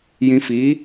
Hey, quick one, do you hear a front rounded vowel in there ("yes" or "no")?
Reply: no